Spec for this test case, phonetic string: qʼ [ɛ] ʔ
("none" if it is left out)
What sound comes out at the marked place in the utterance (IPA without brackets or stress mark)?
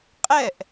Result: ɛ